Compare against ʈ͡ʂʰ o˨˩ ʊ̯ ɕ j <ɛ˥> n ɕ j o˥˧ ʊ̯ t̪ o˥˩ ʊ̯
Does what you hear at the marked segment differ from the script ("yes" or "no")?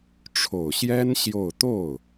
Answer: no